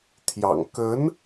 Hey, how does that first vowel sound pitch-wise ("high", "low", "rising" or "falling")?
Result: low